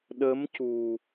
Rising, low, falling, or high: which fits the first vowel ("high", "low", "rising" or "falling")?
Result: rising